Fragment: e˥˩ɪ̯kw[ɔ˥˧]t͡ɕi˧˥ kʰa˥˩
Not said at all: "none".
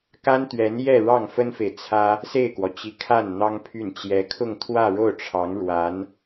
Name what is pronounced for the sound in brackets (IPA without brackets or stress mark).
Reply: ɔ˩